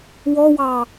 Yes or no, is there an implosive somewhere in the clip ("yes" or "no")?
no